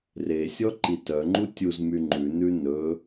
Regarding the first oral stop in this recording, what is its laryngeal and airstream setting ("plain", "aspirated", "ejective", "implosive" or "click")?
click